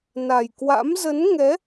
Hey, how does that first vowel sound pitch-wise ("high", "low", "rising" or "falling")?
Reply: low